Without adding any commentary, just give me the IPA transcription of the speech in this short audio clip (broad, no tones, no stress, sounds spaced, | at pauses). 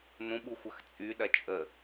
n ũ ɓ u xʷ ɐ x t͡sʼ y ɗ ɐ t͡ʃʼ ə